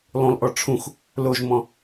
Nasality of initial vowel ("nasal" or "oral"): nasal